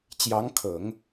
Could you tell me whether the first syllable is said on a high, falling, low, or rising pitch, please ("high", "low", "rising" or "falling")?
rising